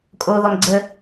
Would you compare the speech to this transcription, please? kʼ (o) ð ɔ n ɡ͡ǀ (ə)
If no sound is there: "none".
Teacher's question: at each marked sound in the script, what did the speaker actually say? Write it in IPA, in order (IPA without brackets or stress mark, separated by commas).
o, ə